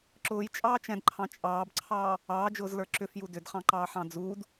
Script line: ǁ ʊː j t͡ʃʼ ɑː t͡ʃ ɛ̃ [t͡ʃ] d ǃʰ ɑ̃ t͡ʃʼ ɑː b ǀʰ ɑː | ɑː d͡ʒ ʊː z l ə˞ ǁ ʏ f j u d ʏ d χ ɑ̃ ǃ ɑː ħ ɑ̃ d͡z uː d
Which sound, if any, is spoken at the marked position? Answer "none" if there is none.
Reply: none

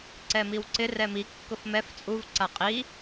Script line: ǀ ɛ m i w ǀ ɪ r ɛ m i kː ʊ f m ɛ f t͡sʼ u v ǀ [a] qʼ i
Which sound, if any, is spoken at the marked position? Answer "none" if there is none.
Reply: a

